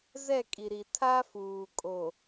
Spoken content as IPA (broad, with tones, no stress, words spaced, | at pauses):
zɛ˦˨kʼi˨ɾi˨ tʰa˦ fuː˨ kʼo˨